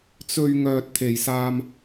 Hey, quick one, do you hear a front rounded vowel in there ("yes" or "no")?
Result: yes